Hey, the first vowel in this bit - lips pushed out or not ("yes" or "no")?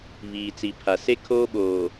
no